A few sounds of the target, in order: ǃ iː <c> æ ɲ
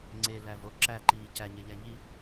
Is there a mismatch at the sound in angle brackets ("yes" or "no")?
no